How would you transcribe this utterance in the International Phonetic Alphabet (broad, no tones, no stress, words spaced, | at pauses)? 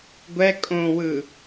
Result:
ɡʷɛ kʼõwɯ